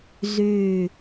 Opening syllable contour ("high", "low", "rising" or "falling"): low